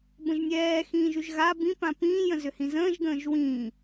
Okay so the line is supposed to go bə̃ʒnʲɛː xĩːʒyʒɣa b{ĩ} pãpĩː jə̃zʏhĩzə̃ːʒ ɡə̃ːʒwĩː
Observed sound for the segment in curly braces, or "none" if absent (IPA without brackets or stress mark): ĩ